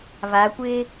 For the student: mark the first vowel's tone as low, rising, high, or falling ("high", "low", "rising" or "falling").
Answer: rising